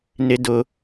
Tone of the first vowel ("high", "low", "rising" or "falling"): high